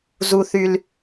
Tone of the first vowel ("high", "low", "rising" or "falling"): high